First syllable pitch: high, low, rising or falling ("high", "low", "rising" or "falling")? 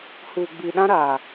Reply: low